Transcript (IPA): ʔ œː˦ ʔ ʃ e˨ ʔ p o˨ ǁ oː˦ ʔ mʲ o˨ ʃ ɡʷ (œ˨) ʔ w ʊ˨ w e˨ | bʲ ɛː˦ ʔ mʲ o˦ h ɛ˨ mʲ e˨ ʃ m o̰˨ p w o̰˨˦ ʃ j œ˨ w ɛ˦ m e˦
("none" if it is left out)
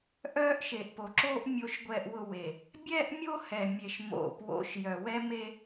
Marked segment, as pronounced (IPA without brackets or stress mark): ɛ˨